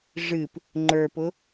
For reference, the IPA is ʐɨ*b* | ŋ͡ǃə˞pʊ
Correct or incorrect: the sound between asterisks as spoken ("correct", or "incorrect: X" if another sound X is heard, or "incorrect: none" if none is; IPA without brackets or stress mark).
incorrect: p